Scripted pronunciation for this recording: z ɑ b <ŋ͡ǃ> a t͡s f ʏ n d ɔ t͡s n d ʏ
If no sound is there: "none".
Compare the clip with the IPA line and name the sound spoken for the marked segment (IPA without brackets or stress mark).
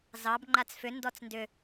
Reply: ŋ͡ǃ